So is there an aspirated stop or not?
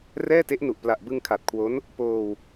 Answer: yes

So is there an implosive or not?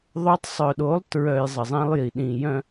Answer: yes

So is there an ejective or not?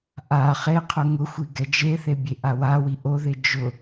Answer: no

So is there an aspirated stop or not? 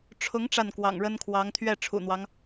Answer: yes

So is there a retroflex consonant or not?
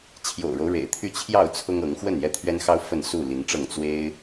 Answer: yes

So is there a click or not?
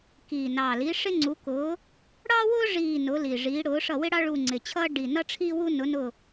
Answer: yes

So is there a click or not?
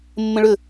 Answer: no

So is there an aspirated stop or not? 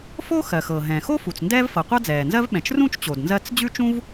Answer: no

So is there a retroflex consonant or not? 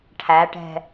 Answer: yes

